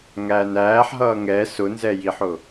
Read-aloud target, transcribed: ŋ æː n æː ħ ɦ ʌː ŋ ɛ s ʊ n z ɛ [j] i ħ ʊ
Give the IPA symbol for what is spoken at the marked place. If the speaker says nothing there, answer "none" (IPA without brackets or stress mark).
j